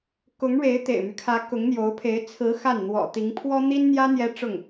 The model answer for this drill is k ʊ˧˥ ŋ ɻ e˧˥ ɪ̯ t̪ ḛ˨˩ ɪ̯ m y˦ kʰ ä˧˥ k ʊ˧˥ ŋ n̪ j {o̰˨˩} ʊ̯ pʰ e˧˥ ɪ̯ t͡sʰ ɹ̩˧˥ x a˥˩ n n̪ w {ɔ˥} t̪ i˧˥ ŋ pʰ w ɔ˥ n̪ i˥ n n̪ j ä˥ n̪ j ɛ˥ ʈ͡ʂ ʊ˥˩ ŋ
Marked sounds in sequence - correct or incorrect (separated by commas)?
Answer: incorrect, incorrect